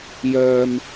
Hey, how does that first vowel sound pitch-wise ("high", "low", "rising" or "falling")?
high